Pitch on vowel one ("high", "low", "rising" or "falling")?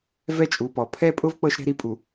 falling